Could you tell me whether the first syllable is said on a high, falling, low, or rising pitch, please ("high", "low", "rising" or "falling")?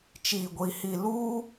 low